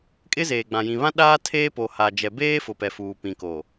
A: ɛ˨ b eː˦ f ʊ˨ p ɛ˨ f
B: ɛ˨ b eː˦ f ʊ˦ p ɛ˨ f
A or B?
A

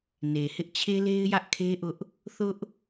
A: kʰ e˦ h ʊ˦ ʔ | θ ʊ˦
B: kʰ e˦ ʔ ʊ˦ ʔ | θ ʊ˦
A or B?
B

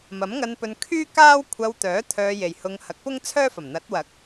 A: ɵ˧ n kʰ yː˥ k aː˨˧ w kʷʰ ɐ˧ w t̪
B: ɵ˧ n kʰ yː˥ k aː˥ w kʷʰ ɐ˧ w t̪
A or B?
B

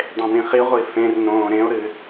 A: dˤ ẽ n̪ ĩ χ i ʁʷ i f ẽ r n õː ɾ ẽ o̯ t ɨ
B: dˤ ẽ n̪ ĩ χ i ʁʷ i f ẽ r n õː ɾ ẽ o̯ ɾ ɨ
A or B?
B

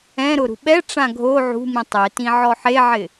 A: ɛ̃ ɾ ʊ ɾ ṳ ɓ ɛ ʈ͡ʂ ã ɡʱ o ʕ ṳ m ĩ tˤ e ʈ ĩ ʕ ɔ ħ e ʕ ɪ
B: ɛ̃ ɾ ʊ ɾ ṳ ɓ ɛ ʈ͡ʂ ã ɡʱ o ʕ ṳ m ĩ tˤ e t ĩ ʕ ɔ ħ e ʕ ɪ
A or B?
B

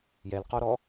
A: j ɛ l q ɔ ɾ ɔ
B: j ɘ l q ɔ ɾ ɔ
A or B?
A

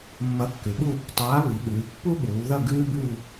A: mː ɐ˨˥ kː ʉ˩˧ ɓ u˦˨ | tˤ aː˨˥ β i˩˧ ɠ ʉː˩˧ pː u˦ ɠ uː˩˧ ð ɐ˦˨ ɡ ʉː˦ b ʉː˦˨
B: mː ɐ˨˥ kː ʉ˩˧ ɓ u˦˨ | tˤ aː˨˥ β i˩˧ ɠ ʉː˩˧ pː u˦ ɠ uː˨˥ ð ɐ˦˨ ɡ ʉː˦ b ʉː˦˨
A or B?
A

